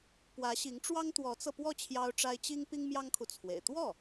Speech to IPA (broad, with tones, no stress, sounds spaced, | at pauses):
p w ä˧˥ ɕ i˧˥ ŋ ʈ͡ʂ w ɑ˥ ŋ t̪ w ɔ˧˥ t͡s ɤ˧ p w ɔ˥˩ t͡ɕʰ j ɑ˥ ʊ̯ ʈ͡ʂ a˥ ɪ̯ t͡ɕ i˥ ŋ p i˥ ŋ m j ɑ˥ ŋ kʰ u˨ t͡sʰ w ḛ˨˩ ɪ̯ t̪ w ɔ˥˩